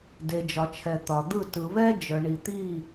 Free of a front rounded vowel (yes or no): no